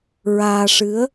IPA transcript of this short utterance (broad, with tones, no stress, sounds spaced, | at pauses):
ɹ aː˧ ʂ ɨ˧˥ ə̯